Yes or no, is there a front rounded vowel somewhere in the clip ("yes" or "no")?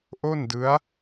no